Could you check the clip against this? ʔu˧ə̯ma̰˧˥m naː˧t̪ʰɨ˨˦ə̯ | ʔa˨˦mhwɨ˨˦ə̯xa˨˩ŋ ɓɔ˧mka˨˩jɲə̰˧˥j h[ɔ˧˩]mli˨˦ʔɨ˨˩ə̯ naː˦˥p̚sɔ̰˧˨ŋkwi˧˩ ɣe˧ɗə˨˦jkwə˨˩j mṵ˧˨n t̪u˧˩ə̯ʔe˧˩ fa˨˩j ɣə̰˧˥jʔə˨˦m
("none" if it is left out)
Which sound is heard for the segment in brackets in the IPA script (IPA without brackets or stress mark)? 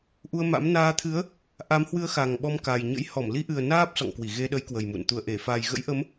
ɔ˧˩